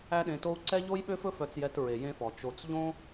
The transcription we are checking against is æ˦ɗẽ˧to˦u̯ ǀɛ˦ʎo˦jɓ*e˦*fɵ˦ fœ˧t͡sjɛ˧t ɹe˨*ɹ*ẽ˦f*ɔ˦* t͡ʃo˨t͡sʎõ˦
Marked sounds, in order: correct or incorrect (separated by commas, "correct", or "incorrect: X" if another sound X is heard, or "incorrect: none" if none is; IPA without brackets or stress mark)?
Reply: incorrect: ø˦, incorrect: j, incorrect: ɔ˨